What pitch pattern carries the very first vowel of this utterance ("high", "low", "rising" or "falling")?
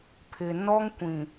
low